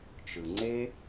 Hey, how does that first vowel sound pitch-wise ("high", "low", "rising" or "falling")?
low